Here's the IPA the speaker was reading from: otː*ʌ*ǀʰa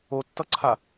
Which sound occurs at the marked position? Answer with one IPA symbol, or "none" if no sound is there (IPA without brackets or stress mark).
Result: ʌ